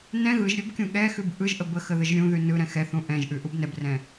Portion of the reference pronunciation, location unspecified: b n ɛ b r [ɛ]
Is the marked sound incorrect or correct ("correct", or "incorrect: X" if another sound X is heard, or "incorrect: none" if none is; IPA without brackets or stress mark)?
incorrect: ɛ̃